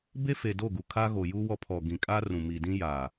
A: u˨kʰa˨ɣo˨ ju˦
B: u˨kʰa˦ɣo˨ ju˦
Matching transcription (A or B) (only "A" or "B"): B